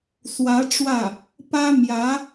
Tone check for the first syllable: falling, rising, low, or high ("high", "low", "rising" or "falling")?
rising